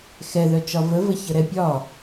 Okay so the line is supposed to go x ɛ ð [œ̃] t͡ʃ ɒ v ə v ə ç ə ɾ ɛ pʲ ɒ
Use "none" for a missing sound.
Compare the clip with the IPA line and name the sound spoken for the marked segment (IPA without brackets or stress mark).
œ